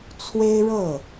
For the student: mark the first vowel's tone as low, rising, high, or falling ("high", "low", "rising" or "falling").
high